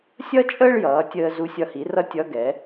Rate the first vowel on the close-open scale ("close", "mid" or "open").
mid